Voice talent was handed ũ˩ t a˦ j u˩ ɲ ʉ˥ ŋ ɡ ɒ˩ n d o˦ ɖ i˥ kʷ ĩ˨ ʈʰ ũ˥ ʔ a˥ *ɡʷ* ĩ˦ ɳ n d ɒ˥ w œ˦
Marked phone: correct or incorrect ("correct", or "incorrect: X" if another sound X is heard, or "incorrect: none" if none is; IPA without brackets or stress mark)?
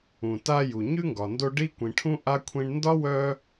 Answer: incorrect: kʷʰ